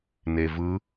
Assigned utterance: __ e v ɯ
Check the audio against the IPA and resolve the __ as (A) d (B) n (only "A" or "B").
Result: B